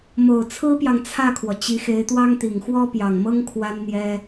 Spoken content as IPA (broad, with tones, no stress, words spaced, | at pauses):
mo˨˩ʊ̯t͡sʰɹ̩˥pjɑ˨ŋ t͡sʰä˥˩kʰwɔ˩ t͡ɕi˧˥xe˧˥ɪ̯t̪wɑ˥ŋt̪i˨˩ŋ xwɔ˥pjɑ˨˩ŋmɤ˥ŋ kʰwa˥nn̪jɛ˥